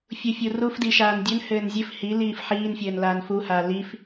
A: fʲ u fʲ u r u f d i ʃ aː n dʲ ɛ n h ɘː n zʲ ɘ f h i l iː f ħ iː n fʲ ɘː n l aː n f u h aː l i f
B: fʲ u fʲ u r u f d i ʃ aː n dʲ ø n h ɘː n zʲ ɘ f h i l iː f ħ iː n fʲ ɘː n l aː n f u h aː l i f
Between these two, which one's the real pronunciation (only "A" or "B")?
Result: B